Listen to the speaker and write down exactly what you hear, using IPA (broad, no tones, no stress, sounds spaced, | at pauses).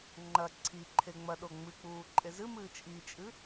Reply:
ŋ͡ǃ ɐ ǀʰ i ǃʰ e ŋ͡m ɐ ɗ o ŋ͡m ɨ k͡p uː ǃʼ e z ɨ m ɨː t͡ʃʼ i t͡ʃʼ ɨ